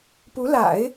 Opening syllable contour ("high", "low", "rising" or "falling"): rising